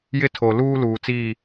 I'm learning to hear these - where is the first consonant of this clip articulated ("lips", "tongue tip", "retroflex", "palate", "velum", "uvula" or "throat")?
palate